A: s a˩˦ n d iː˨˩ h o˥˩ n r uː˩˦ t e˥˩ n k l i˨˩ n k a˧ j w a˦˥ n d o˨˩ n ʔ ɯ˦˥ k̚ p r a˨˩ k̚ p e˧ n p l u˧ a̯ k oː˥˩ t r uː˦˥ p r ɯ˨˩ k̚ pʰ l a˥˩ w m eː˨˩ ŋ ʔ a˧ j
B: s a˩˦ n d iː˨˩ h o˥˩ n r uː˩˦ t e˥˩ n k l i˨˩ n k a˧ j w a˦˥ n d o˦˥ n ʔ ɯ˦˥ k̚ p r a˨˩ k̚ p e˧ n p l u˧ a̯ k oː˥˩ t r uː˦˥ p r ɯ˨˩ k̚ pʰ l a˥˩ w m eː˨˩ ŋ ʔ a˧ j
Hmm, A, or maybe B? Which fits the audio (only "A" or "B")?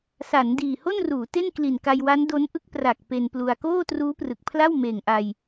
B